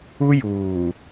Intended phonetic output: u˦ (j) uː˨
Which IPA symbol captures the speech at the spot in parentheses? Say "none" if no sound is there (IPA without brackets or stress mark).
j